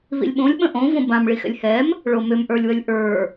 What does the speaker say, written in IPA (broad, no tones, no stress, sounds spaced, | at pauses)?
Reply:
β ḭ lʲ ɓ õ lʲ ɓ ə̃ ʔ õ v õ b ã m ɭ i x ɛ̰ lʲ h ɛ m | ɭ o m ʏ m ʔ ə˞ lʲ w ə lʲ ʔ ə˞